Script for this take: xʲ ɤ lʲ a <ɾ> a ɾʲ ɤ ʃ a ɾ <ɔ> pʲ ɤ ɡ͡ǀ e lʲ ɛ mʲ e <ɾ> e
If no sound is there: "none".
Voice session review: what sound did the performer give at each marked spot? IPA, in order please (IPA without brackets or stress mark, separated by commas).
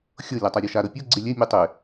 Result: tˤ, ɤ, tˤ